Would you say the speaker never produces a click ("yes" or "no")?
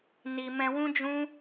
yes